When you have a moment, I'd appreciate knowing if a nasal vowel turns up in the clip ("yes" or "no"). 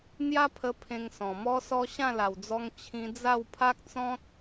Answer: yes